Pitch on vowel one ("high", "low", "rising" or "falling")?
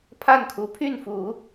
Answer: falling